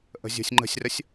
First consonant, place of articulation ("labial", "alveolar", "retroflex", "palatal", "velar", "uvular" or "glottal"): glottal